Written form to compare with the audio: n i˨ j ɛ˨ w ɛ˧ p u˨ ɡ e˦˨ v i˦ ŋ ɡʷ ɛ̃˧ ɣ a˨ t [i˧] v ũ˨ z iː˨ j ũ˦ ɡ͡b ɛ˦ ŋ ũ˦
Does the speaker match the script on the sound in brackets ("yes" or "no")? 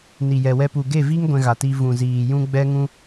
yes